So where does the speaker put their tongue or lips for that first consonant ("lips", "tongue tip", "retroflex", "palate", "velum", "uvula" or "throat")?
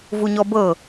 lips